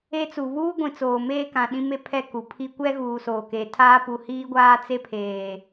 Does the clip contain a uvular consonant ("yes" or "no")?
no